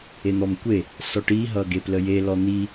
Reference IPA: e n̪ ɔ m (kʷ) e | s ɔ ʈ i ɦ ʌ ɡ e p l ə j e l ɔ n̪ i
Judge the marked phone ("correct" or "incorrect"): correct